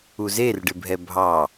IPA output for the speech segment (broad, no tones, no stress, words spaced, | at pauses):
uzerɖɪbʱɛ bʱɑ